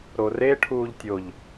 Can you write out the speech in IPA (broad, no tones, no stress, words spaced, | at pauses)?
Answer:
ɾoreʈʰuːʎ tʲoʎ